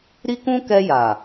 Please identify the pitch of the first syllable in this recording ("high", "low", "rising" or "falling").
high